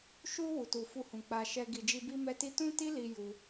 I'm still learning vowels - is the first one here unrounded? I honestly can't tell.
no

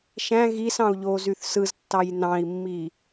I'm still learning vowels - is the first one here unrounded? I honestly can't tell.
yes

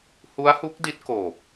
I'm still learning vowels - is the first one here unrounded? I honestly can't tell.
no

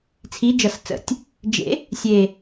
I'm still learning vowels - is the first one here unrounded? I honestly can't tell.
yes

